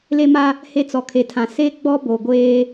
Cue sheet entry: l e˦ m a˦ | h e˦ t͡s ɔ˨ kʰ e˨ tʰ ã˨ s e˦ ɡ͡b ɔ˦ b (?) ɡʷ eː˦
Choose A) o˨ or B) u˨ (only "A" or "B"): A